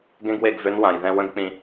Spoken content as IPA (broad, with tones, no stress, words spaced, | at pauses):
ɡẽ˦ɡwe˦˨ɡ vø˦nwã˨jðɛ̃˦ wə̃˦ɡk͡pĩ˨